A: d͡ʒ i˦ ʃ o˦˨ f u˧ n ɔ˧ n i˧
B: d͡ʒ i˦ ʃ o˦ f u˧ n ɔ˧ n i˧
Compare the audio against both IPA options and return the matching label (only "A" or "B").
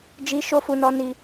B